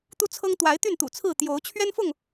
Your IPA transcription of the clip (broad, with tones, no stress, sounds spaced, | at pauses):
t̪ u˦ t͡sʰ ɤ˦ ŋ t̪ w a˨˦ ɪ̯ t̪ y˥˨ n t̪ ṵ˨˩ t͡sʰ ɹ̩˥˨ t̪ j o˨˦ ʊ̯ t͡ɕʰ ɥ ɛ˦ n f ʊ˥˨ ŋ